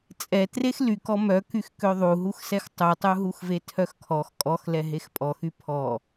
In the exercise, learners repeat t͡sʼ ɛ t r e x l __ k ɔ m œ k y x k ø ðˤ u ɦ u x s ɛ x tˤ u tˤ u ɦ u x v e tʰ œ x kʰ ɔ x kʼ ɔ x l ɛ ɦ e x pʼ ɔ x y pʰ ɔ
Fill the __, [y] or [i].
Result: y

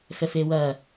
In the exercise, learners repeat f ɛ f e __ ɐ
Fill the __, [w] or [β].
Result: w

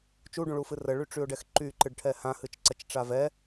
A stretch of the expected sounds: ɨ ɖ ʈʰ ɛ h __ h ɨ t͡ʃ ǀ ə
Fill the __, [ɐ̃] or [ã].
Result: ã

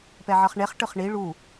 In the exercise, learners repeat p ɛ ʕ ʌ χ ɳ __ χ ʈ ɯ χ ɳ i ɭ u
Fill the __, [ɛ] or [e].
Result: e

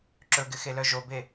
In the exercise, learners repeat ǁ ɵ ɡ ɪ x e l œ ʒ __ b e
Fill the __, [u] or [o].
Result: o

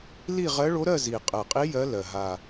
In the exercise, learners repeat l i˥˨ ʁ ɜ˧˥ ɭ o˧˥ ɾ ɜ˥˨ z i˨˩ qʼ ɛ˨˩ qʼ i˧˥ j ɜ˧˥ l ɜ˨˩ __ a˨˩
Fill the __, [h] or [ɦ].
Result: ɦ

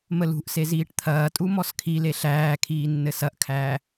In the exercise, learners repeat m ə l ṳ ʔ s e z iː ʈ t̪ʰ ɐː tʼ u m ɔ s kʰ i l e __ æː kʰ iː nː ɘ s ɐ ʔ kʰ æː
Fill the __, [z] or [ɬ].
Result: ɬ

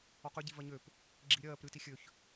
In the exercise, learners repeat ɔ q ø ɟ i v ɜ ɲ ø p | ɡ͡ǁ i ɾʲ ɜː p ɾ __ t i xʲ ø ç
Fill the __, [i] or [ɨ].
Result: ɨ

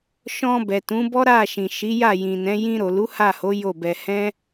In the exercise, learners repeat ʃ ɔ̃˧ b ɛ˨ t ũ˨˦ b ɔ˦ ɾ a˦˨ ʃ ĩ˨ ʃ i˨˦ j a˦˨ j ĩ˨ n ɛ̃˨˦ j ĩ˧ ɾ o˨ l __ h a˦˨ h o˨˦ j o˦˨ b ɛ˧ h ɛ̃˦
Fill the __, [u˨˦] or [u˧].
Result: u˨˦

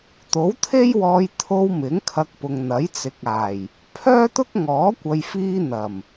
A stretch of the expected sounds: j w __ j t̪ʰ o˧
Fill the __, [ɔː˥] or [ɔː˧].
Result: ɔː˧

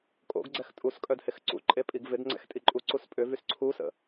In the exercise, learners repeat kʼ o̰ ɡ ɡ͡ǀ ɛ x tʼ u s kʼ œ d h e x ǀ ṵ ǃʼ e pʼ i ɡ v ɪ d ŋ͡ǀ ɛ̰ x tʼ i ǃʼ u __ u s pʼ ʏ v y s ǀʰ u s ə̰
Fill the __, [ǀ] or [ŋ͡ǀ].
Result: ǀ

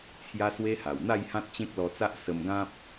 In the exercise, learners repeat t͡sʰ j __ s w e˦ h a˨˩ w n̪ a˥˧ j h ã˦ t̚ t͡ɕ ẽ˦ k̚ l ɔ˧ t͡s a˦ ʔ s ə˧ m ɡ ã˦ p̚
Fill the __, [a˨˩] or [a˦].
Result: a˦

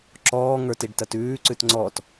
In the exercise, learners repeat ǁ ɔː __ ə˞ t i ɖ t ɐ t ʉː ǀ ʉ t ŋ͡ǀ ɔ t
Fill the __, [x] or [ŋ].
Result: ŋ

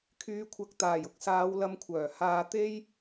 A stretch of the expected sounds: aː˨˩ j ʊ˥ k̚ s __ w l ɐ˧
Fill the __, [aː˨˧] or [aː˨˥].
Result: aː˨˧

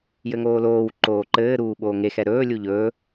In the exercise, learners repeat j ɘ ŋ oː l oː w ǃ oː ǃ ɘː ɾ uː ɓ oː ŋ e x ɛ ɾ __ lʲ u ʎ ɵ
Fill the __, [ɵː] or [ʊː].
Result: ɵː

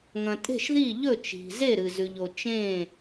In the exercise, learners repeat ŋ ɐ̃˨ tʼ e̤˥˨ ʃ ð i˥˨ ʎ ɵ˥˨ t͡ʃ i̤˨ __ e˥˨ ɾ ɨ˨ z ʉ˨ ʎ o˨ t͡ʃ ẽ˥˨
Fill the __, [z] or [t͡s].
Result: z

